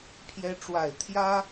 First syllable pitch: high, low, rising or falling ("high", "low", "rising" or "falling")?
high